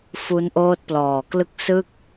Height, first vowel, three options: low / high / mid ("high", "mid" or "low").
high